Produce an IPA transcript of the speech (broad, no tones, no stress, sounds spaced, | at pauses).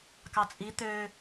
k ɑ t͡sʼ i t̪ ø